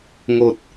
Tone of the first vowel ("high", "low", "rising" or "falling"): low